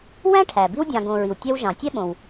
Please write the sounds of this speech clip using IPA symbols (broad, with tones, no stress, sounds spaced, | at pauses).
w æ̃˥ ʈʰ æ˩ b i˦ w dʲ ɑ̃˨ ɡ õ˨ ɹ i˩ w tʲ ɛ˦ w ʒ ɑ̃˩ tʲ ɛ˥ ɓ õ˩ w